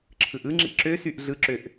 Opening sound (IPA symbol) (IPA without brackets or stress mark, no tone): ǁʰ